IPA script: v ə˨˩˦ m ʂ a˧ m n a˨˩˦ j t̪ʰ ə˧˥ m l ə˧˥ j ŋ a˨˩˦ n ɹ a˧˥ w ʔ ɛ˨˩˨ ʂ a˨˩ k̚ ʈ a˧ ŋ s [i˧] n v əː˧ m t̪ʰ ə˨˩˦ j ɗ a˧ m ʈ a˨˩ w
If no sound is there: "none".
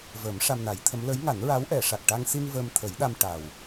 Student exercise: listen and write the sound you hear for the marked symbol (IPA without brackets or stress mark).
i˧